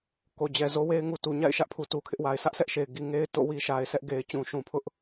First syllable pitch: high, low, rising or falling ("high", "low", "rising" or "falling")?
low